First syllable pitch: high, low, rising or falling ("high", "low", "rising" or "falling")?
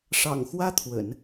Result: low